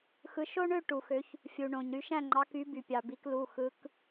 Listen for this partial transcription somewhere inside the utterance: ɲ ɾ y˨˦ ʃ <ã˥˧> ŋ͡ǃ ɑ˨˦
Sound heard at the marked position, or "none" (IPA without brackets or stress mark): æ̃˥˧